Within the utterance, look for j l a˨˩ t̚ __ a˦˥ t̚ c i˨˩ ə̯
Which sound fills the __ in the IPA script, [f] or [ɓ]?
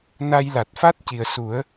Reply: f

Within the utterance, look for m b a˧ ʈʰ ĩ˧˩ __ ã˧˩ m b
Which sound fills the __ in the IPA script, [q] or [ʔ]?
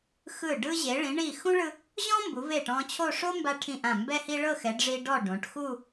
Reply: ʔ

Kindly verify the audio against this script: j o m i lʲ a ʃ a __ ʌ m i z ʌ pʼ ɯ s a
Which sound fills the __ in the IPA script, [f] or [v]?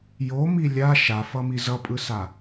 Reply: f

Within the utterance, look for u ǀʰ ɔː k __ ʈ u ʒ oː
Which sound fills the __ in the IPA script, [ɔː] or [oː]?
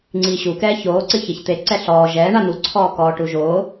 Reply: ɔː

